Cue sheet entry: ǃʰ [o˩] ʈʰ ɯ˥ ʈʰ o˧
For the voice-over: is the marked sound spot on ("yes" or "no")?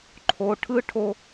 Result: yes